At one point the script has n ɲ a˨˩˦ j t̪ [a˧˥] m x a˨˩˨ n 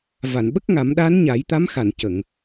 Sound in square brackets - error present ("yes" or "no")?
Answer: no